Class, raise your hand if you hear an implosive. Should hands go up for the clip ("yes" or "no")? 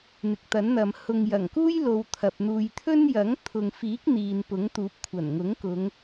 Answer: no